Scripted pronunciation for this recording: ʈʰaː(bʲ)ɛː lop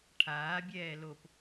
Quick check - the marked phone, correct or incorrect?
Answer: correct